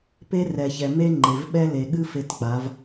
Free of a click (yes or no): no